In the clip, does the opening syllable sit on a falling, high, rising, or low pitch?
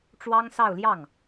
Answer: high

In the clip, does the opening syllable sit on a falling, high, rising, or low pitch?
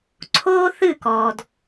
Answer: high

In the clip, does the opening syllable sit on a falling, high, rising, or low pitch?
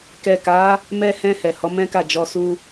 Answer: low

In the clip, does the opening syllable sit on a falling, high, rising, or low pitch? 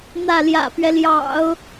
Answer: falling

